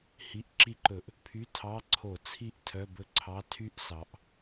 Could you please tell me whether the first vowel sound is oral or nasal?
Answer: oral